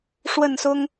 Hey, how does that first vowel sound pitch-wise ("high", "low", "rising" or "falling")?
falling